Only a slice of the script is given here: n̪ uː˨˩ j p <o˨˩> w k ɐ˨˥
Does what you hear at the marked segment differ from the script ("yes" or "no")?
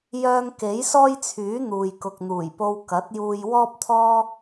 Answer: yes